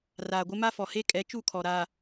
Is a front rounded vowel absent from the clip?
yes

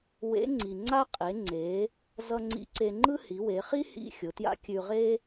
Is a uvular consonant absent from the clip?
no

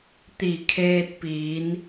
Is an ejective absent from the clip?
yes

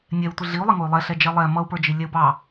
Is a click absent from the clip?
yes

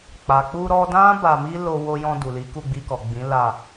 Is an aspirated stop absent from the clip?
yes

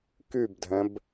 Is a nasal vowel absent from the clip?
no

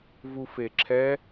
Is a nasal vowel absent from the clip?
yes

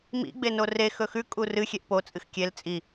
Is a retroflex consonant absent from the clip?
yes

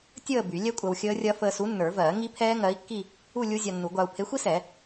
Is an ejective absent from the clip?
no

